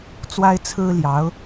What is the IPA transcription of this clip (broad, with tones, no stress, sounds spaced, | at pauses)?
t͡s w a˥ ɪ̯ t͡sʰ ɹ̩˥ l j ɑ˧˥ ʊ̯